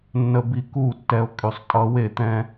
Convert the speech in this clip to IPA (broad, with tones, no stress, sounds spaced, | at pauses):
nː ə˧ b i˧ k u˦˨ tː ɛ˧ o̯ kʼ y˨ sˤ tʼ ʌ˧ w e˦˨ t̪ ɛ̃˦